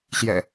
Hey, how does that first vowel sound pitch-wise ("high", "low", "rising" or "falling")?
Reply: low